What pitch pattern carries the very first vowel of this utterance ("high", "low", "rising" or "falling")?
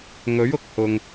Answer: rising